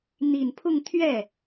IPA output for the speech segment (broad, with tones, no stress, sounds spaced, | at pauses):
n̪ i˨˩ n pʰ ʊ˥˧ ŋ t̪ʰ ɥ ɛ˥˩